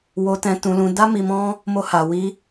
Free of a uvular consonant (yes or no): yes